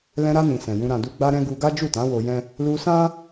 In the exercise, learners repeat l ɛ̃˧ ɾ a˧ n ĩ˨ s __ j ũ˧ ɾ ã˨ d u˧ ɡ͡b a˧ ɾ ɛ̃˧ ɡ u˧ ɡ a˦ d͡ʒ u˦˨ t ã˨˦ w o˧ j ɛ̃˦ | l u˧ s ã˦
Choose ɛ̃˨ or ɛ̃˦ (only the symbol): ɛ̃˨